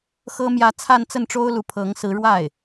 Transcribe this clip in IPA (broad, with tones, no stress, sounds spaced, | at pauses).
x ɤ˥ m j ä˥˧ t͡sʰ a˥˧ n t͡s ə˥˩ n ʈ͡ʂ o˥ ʊ̯ l u˧˥ pʰ ɤ˧˥ ŋ s ɹ̩˧˥ ɻ w a˥˩ ɪ̯